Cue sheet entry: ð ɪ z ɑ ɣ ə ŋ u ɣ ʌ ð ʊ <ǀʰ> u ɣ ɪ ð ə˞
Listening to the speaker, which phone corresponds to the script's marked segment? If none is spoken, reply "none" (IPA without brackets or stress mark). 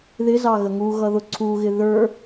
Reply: ǀʰ